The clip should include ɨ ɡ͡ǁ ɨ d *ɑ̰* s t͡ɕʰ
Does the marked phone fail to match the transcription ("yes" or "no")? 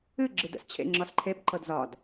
yes